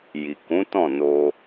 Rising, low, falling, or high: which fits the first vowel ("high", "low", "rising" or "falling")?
low